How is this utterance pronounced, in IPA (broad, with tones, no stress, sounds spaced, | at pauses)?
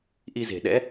ʔ i˧ z e̤˨˩ ɗ ɛ̰˧˥